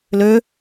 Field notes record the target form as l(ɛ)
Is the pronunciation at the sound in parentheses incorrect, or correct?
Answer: incorrect